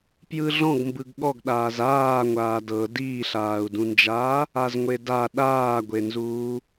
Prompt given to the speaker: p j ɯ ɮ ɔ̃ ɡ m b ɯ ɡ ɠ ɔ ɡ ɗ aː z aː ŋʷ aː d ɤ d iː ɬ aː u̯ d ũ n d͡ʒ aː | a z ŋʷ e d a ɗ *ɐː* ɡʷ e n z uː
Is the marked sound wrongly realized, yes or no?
yes